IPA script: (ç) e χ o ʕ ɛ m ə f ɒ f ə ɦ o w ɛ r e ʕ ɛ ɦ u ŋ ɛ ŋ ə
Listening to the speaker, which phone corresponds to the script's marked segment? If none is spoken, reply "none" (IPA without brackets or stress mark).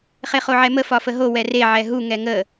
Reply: χ